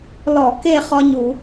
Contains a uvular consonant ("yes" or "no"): yes